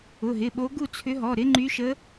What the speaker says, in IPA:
ʊ˩˧˩ ɦ ɪ˩˧˩ ɓ o˧˥ ɡ u˥˨ t͡sʰ ʏ˧˥ ɦ ɔ˩˧˩ ɾ ɪ˧˥ ŋ͡ǃ y˧˥ ʃ ə˧˥

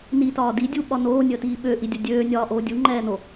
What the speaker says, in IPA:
n i t ɒː d i dʲ u ɓ ɒ n oː nʲ əː t iː ɓ ø ʔ i dʲ ɐ dʲ øː nʲ ɒː ʔ oː dʲ u ŋ͡ǃ ɛː n o

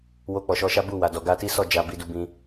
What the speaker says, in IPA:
w o˧ k͡p ɔ˨ ʃ ɔ˨˦ ʃ a˦ b u˦˨ w a˨ d ɔ˨ ɡ a˧ t i˦ s ɔ˦˨ d͡ʒ a˧ b i˧ d u˧ b ĩ˧

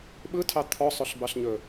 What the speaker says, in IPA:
ɓ ɯ tʰ ɑ t̪ʰ ɔ sˤ ɵ ɬ b ɑ ɬ ɲ ɵ

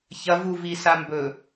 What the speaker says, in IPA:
ç ɐ v u v i s a m b ɵ

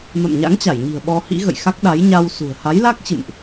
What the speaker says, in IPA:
m a̰˧˨ m ɲ a̰˧˥ ŋ t͡ɕ a˧˩ j ɲ i̤˨˩ ə̯ ɓ ɔ˧ h ḭ˧˥ ɣ ə̰˧˨ j x a˦˥ k̚ ɗ a˨˦ j ɲ a˧ w s ṳ˨˩ ə̯ h a˨˦ j l a˦˥ k̚ t͡ɕ ɨ̰˧˨ m ʔ

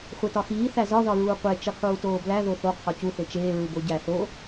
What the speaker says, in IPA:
χʷ e t ɒ x iː θ æ z ɒ ð ɒ ɹ uː qʷ e t͡ʃ i qʰ uː t oː b l æ ð o θ o qʰ ɒ c u θ e t͡ʃ eː ɹ u b o ɟ æ θ o

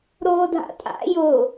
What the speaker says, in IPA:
ɾ oː dʱ a̰ tʼ a̰ j ʊ

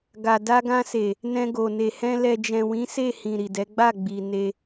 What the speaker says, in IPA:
ɡ a˨ d a˧ ɡ ã˧ s e˨ | n ɛ̃˧ ɡ o˨ n e˨ h ɛ̃˧ l ɛ˨ d͡ʒ ɛ̃˨ w ĩ˨˦ s e˦˨ h ĩ˨ ɾ i˨ d ɛ˨˦ ɡ͡b a˦˨ ɡ͡b i˨ n e˧

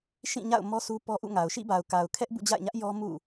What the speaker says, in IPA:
ʃ ĩ˦˨ ɲ a̰˦˨ ʊ̯ m ɔ˦ sʰ u˦ p ɔ˦ ʔ ṵ˦˨ ŋ a˨ ʊ̯ ʃ ḭ˦˨ b a˨ ʊ̯ k a˨ ʊ̯ kʰ ɛ˦ ʔ b ṵ˦˨ d͡ʑ a̰˦˨ ɪ̯ ɲ ä˦ ʔ j ɔ˦ m ṵ˦˨

